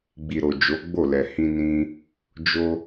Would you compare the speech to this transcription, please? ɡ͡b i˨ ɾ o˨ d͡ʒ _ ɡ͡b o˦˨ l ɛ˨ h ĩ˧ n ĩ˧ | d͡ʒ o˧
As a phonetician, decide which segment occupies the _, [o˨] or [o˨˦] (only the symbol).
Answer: o˨˦